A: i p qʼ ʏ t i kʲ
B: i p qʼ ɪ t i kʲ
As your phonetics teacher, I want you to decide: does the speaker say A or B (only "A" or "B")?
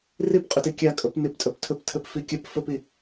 A